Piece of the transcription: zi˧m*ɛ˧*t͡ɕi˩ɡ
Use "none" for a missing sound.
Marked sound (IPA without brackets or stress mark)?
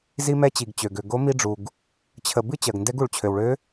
ɛ˧